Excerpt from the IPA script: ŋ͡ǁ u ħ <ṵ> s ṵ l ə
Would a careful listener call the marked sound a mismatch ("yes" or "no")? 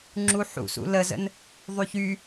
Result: no